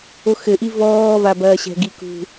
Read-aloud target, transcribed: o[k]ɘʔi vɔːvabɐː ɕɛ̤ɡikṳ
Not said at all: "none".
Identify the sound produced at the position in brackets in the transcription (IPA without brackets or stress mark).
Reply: x